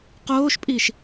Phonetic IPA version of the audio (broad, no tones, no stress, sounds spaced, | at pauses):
q oː ʃ pʼ i ʃ